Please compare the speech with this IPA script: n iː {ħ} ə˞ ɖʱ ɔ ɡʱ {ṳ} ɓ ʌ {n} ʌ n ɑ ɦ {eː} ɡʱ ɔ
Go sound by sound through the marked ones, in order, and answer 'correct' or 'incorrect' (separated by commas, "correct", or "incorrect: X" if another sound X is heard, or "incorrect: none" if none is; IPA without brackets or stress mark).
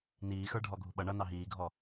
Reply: incorrect: x, correct, incorrect: ɳ, incorrect: iː